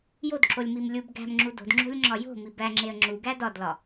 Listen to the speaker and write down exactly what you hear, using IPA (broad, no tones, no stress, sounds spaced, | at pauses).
j o d ǁ o lʲ m i m lʲ u b ɡ æ̤ m ŋ͡ǁ u d o̤ d ŋ͡ǁ o̤ lʲ ŋ͡ǁ ɒ j o̤ m i b æ ŋ͡ǁ e ə̯ ŋ͡ǁ u ɡ æ d ɒ d l ɒ